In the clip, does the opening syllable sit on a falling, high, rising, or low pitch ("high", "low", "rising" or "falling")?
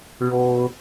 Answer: high